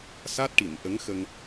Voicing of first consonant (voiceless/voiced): voiceless